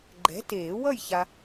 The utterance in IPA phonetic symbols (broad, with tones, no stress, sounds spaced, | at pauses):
ɡ͡ǃ ɛ̤˨˥ t eː˨˩˦ w ʌ˥˨ j ç a˨